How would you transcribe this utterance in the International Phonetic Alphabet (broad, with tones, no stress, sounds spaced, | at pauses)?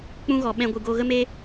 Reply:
k͡p ũ˦ ɣ ɔ˨ ɓ ɛ̃˧ ɡʷ ɨ˨ ɡ o˧ ɣ ə˦ m e˦